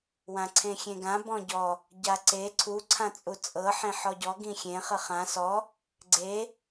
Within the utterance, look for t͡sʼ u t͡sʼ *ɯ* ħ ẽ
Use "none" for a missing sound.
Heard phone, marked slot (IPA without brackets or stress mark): ɤ